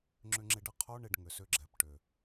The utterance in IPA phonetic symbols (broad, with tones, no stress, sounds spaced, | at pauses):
ŋ͡ǁ ʏ˧ ŋ͡ǁ ɪ˧ ɖ ə˦ qʰ o˦ ɳ ɪ˧ ɖ ŋ ʏ˨ s ʏ˧ ɡ͡ǁ ɛ˨ p ʈ ʏ˨